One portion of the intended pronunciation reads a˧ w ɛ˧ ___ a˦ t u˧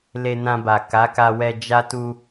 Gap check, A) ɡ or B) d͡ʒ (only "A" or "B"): B